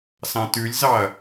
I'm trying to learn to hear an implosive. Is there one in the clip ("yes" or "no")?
no